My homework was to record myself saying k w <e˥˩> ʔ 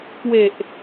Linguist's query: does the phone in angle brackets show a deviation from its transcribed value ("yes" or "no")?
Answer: yes